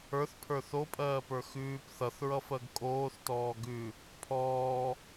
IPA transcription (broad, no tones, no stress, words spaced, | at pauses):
ə˞θpʰə˞ θopʼɜːpə˞ xʉːp θʌθɹʌfɜɡ kʼoːθtɔː ɡʉ | pʰɔː